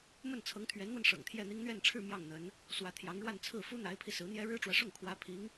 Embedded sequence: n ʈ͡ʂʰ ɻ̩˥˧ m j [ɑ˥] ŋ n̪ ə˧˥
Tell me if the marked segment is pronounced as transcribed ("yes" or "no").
no